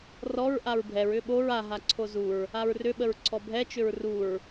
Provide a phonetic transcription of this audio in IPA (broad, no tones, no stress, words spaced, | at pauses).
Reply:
rɔɹ ʔaɹbʱɛɹ ʏɓoɹ a ɦaǀʰozuɹ | aɹrʏ ɓəɹǀʰɔbʱɛ t͡ʃʏɹruɹ